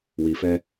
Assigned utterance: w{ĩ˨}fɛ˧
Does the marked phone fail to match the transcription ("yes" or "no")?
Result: yes